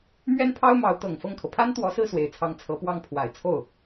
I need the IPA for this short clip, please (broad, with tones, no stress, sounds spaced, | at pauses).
m ɥ ɛ˥ n pʰ ɑ˥ ʊ̯ m ɑ˧˥ ʊ̯ t̪ ɤ˨˩ ŋ f ɤ˥˩ ŋ kʰ ɤ˩ pʰ a˥ n t̪ w ɔ˧˥ s ɹ̩˥˩ s w e˨˩ ɪ̯ t͡sʰ ɑ˧˥ ŋ t͡sʰ ɤ˧˥ p w ɑ˥˩ ŋ pʰ w a˨˩ ɪ̯ t͡sʰ o˥˩ ʊ̯